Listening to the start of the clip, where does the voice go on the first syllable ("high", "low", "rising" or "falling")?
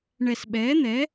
falling